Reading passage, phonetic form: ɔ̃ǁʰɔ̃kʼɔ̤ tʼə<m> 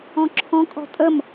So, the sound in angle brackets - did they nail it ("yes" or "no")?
yes